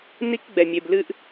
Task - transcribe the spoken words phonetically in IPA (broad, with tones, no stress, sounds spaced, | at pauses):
n i˦ k ɡ͡b ɛ˨ mʲ e˨ b l ɨ˦ ʔ